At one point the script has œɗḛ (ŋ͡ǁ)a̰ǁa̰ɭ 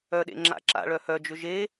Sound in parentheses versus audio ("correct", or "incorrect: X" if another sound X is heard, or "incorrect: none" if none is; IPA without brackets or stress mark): correct